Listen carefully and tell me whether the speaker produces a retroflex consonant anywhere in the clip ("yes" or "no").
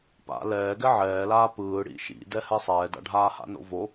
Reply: yes